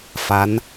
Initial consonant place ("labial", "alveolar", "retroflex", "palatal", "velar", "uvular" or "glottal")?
labial